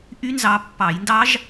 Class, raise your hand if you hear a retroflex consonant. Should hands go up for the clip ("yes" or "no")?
no